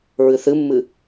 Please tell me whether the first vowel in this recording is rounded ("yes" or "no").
no